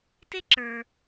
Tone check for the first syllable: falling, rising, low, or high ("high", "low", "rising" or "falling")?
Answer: high